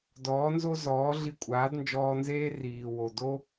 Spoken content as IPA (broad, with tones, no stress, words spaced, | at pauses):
dɔː˨˦nzo˦zɔː˨˦ ɮi˧kʷʼaː˨˦dnd͡ʒɔː˧nzeː˦ riː˨wo˨ do˦